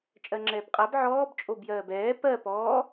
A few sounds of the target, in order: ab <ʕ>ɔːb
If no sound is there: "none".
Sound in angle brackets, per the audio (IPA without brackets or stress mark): ʕ